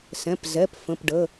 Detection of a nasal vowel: present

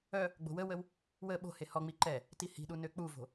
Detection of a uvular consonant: absent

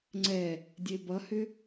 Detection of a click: present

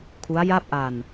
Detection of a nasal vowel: absent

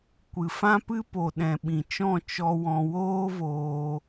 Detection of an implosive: present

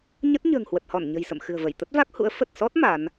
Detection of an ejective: absent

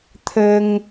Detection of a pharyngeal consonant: absent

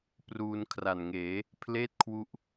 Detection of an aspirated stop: present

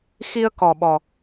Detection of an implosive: present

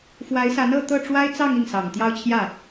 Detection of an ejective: absent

